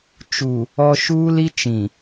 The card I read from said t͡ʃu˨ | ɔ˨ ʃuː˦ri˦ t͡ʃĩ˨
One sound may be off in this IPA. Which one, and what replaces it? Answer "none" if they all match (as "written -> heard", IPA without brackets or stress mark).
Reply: r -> l